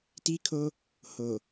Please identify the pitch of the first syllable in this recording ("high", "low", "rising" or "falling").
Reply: high